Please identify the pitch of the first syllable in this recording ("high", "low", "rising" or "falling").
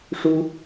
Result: high